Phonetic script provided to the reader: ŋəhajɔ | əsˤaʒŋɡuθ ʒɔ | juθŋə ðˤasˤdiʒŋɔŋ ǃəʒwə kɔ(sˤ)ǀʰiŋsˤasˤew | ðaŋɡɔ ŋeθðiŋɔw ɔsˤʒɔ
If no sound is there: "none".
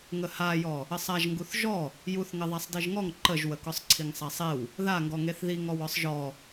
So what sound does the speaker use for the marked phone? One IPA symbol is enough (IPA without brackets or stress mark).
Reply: sˤ